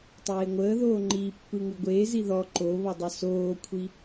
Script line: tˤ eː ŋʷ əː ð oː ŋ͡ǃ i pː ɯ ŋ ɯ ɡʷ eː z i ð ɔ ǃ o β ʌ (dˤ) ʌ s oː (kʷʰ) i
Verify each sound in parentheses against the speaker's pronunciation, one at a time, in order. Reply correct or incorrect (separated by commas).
correct, correct